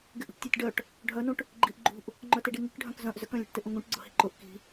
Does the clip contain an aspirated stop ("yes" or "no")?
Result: no